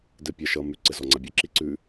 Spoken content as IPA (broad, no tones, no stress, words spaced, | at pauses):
dɘpʲaʃʌ mʉ ǀɘzɔŋ͡ǀabʲɵ ǁiǀʉ